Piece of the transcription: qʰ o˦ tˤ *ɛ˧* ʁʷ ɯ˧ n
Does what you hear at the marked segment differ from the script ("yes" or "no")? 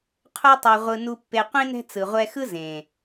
no